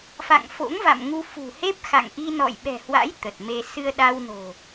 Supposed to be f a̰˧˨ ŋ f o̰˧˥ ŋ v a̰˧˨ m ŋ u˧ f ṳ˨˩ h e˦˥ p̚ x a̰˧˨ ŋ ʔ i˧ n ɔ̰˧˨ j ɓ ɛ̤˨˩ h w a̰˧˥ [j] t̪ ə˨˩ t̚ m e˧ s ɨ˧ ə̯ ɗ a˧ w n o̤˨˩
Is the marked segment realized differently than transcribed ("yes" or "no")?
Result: no